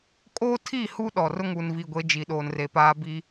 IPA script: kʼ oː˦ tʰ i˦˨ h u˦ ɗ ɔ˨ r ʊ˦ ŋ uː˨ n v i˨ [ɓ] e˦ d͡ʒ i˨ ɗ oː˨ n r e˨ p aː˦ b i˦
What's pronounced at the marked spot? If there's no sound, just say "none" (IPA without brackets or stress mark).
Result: ɡʷ